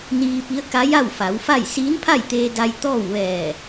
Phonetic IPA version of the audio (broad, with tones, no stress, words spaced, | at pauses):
niː˧pi˧˥ə̯ ka˧˥ja˥˨w fa˩˧wfa˥˨j siː˧˥npʰa˥˨jt̪eː˧da˧j t̪ɔː˥˨wʋɛː˧˩